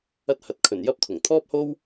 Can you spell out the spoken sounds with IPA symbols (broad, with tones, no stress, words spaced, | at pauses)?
ɐ˧t̚hɐ˨˥t̚kʰɵ˨˩n jɐ˥p̚t̪ʰʊ˨˩ŋ t̪ʰɔː˥p̚ho˥w